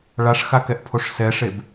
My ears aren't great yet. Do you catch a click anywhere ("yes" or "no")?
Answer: no